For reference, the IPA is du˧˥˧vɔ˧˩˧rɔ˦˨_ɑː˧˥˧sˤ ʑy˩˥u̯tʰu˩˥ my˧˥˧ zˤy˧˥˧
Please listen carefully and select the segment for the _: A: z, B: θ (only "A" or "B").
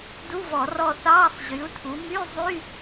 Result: B